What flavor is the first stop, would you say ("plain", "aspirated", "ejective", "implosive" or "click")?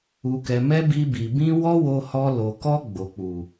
plain